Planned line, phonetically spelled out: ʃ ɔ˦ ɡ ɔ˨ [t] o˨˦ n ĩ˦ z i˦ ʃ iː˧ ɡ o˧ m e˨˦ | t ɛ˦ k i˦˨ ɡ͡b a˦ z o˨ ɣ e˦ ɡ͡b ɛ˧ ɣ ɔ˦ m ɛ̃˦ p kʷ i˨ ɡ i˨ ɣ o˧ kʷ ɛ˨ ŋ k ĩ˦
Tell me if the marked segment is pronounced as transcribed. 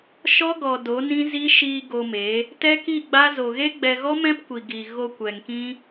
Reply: no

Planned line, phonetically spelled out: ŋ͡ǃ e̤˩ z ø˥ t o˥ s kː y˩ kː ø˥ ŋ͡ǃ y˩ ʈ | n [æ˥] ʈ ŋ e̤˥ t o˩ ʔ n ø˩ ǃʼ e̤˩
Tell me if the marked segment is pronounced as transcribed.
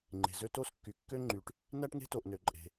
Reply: yes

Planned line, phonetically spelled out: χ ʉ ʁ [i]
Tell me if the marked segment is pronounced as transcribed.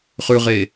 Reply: no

